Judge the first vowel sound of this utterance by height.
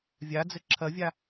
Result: low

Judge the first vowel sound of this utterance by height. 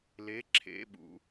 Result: mid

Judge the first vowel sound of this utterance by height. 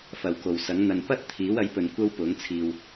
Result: low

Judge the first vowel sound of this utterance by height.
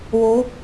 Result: mid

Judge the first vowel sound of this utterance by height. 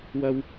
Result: low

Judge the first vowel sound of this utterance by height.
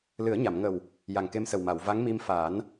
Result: high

